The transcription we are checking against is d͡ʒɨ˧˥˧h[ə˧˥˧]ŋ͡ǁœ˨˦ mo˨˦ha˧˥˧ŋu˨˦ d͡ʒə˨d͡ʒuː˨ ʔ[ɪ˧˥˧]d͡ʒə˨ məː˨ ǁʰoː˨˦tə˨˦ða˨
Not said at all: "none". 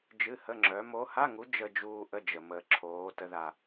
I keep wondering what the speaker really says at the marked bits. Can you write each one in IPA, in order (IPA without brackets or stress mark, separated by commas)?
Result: ə˧˥˧, ə˧˥˧